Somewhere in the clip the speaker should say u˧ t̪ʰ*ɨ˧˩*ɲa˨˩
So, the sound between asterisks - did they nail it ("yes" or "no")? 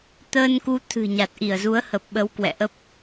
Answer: no